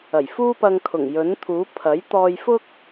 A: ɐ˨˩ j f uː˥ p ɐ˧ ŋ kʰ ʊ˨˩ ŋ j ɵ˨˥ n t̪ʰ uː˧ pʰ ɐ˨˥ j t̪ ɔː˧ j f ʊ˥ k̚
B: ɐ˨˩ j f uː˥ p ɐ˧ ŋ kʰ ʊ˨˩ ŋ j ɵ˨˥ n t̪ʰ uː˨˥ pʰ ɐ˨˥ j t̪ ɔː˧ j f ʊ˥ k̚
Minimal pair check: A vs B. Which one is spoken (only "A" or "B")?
B